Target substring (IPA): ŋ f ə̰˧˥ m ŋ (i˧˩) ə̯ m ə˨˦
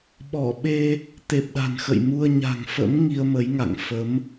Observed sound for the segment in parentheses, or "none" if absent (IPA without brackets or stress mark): i˧